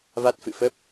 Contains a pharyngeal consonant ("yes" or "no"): no